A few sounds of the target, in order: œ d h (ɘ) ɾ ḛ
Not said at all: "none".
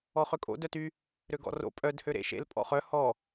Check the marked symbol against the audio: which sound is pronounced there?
ø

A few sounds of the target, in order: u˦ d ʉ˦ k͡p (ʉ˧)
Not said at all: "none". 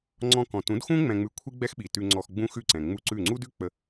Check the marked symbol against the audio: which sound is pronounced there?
ə˧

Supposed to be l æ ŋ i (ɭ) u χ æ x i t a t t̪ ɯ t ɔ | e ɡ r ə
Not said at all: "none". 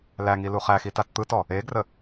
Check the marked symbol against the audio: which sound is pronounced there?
l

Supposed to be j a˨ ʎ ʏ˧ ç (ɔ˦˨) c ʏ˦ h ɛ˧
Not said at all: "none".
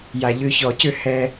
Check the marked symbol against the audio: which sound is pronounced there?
ɔ˨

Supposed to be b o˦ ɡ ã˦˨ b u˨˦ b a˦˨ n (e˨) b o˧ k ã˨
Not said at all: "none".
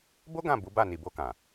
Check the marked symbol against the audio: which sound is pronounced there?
i˨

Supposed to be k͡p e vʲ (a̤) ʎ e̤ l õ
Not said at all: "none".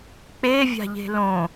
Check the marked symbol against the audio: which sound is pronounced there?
a̤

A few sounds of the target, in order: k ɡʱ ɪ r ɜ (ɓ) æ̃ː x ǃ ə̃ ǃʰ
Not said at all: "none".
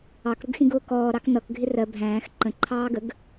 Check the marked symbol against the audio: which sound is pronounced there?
bʱ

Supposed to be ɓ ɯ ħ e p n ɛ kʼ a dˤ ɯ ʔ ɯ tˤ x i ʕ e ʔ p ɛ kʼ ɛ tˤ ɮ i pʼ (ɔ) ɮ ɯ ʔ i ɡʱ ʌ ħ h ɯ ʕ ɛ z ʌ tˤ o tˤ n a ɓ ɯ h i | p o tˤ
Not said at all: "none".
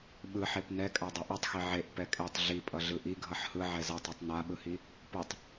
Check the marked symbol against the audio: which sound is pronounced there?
ʌ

